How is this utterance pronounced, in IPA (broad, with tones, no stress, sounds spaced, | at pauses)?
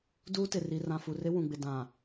d uː˦ t ɪ˨ r i˨ r ã˨ f u˨ r ɪ˦ w ũ˨ ɡ͡b ɪ˨ d ã˨